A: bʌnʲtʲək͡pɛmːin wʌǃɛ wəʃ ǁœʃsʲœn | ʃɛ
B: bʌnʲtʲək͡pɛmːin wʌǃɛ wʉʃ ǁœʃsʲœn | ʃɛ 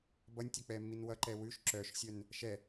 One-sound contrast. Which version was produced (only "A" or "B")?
B